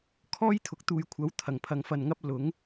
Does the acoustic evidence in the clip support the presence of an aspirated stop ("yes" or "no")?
yes